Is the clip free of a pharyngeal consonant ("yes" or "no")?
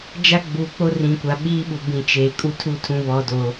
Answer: yes